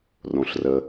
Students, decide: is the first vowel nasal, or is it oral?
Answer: nasal